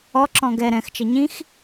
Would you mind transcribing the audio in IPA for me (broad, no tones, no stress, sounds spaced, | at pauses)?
ɔ ǁ ɔ̃ ɡ ɛ ɾ ɛ̃ x t͡ʃ ɐ ɲ ĩ x